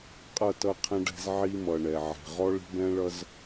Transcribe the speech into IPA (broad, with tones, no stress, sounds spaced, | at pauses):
qʼ ʌ˦˨ t ʌ˦˨ qʰ ɛ̃˦ ɖ ɛ̤˦ z ʕ i˦ m ʌ˨ ɳ ɛ˨ ʕ ɛ̤˨ ʁ ɔ˦ ɭ i̤˦ b ɛ̃˦ ɭ ʌ˦ z